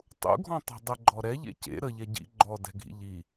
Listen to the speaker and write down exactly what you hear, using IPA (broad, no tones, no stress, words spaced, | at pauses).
tˤṵɡʱɔ̃ tˤɛ̤dˤəɡ͡ǃɔ ɾɛʎḛ cḛ ɾə ʎɛɟḭ ɡ͡ǃɔdɛ̤ɡʱḭ ʎi